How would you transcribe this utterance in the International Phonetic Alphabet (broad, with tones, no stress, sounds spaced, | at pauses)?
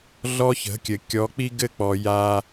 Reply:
ɮ ɔ˦ ç ə̤˨˦ kʲ ɘ˨ kʲ ɔ˨˦ k͡p i˦ ɡ ɘ˦˨ k͡p ɔ˨ j a˦